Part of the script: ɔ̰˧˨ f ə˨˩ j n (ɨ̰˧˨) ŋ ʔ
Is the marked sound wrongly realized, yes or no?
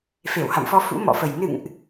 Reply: no